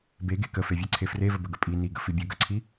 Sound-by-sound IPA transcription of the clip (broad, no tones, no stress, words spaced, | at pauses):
beɡe kəfevʲæǀʰe frevəbəɡə pʼi niɡə fibʲə ɡəǀʰi